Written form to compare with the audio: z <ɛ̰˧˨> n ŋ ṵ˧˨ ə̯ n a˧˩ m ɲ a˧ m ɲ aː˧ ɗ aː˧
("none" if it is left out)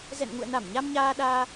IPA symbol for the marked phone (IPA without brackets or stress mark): ɛ̰˧˨